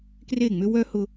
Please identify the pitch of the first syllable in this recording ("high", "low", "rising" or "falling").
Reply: falling